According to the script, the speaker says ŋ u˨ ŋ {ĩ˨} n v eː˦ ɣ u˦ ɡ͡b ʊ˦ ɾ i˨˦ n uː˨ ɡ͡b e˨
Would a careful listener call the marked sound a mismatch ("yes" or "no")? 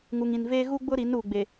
no